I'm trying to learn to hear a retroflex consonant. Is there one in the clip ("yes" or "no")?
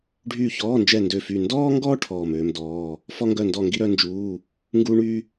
yes